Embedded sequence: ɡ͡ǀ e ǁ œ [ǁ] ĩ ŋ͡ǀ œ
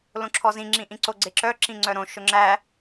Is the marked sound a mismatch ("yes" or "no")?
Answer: no